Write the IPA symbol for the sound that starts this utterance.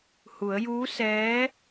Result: h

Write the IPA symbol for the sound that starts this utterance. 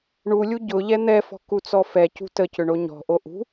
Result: ɳ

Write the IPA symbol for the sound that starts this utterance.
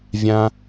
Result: vʲ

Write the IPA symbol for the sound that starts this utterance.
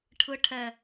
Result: ʈʰ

